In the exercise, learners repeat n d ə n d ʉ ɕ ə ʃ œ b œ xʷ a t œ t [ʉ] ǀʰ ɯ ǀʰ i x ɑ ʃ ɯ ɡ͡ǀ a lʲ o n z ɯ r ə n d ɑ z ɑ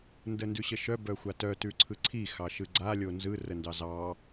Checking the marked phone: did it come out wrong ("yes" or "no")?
no